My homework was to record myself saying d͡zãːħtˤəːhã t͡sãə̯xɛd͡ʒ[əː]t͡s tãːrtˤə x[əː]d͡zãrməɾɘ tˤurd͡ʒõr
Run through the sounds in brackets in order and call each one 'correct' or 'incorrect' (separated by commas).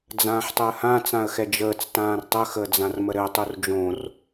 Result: correct, correct